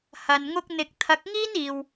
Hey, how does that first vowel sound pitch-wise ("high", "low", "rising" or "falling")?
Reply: low